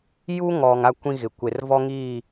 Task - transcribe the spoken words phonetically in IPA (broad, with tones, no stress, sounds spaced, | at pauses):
j u˦ ŋ ɔ˨ ŋ a˦˨ kʷ ĩ˦ ɣ ɪ˨ kʷ e˨ r v ɔ˦ ŋ iː˦˨